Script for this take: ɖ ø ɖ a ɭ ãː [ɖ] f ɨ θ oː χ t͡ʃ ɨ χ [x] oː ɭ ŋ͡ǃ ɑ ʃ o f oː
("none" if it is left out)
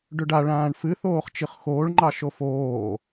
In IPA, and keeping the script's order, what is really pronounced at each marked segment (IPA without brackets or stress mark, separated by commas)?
ɳ, x